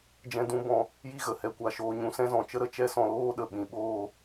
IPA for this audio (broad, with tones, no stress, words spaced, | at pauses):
d͡ʒɛ̃˦dũ˦bɔ̃˧ | ji˦ɣə˨hɛ˧kʷa˧ ʃoː˧ɲũ˧sɛ̃˦ zɔ̃˨t͡ʃə˦ɾə˨ t͡ʃɛ˦sɔ̃˧loː˦ɗə˨ ɓĩ˨ɓoː˦˨